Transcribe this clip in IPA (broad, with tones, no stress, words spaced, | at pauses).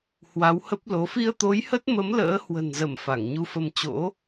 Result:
hwa˨˦whə˦˥p̚lo˨˦ fi˧ə̯t̪o˨˦jhə˦˥t̚mə˨˦m lə̰ː˧˥hwə̤˨˩nzə˧˩m fa˧˩ŋɲu˧fə˧m t͡ɕo̰˧˥